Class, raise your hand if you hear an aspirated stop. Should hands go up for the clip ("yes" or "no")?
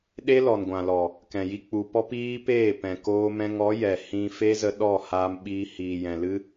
no